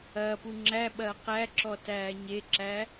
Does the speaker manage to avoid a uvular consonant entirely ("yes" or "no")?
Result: no